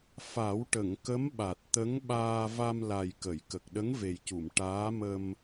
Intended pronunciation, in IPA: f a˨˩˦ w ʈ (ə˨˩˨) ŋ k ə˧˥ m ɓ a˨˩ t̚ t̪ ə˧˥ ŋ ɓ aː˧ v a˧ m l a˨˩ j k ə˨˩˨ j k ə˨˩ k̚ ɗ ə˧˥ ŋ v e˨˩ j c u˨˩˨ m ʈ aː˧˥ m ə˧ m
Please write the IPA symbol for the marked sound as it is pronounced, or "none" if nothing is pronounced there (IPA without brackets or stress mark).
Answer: ə˨˩˨